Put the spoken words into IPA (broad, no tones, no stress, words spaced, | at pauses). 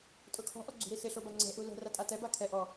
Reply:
tʼʊkʰɔ̤ ʔɔɡ͡ǀṳɾisɪ ɬobaŋ͡ǀɛ̤ ʔulɛ̤ ratʼatɛ bakʰɛ ʔɔ